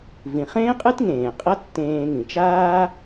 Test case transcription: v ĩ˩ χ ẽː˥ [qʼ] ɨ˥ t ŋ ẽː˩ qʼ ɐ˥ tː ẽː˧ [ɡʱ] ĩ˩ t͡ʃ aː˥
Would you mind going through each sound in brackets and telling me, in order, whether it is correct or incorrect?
correct, incorrect: ŋ

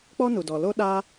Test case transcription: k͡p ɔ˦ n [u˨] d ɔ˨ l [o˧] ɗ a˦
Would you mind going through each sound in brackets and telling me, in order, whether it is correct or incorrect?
correct, incorrect: o˦

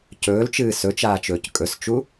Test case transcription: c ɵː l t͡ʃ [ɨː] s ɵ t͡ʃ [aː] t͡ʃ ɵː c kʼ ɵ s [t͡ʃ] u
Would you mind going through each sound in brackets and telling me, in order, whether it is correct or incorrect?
correct, correct, correct

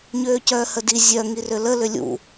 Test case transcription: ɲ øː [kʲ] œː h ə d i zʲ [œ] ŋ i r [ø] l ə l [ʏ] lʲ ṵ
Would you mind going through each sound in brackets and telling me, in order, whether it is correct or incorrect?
incorrect: c, correct, correct, correct

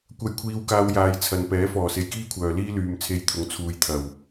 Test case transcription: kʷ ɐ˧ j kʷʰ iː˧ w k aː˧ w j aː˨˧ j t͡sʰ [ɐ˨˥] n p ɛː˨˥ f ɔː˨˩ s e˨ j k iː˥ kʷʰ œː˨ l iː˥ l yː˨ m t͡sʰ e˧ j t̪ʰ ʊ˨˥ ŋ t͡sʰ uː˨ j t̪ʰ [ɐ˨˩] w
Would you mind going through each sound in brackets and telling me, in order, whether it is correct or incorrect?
incorrect: ɐ˨, correct

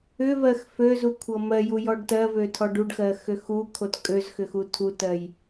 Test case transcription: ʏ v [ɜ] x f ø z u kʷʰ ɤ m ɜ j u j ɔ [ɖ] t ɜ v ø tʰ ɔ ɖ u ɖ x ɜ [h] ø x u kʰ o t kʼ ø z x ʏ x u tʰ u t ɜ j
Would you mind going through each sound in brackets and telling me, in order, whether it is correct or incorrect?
correct, correct, incorrect: x

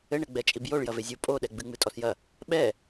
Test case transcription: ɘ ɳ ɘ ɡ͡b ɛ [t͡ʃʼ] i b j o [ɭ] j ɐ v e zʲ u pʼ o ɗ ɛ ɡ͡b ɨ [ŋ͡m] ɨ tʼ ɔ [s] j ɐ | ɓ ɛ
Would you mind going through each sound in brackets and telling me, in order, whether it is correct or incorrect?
correct, correct, correct, correct

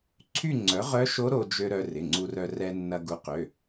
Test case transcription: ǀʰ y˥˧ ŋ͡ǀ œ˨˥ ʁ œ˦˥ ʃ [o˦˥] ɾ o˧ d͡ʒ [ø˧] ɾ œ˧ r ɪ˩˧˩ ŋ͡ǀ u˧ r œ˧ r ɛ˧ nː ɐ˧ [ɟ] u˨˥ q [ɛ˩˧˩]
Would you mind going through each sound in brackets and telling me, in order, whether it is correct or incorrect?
correct, correct, incorrect: ɡ, incorrect: ø˩˧˩

